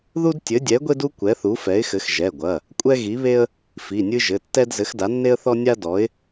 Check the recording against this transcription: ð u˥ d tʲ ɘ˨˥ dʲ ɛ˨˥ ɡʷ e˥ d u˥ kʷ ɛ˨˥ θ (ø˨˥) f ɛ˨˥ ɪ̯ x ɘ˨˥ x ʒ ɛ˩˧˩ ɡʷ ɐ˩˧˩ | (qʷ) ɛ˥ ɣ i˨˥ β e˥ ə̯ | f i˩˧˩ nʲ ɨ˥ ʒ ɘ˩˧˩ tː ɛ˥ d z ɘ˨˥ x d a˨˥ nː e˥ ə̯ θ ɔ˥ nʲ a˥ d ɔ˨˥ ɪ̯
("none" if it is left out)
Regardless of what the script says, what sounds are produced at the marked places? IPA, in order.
u˨˥, kʷʼ

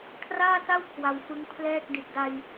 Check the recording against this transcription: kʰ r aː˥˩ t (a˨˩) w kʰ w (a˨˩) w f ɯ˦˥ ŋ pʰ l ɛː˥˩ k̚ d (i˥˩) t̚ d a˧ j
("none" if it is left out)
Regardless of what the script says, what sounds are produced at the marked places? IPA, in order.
a˥˩, a˧, i˨˩

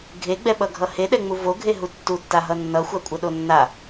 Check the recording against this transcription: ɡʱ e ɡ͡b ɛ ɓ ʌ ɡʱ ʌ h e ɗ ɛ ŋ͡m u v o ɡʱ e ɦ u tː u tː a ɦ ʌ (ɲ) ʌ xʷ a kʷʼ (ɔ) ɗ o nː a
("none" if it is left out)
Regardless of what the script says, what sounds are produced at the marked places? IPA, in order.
nː, ʌ

